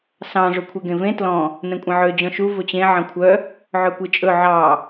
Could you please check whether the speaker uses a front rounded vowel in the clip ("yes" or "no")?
yes